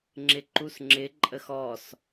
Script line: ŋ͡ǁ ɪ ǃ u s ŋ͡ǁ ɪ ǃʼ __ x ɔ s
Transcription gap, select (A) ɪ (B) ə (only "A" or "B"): B